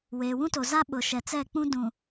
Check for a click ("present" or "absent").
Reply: absent